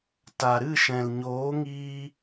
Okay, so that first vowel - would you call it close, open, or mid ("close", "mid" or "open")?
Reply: open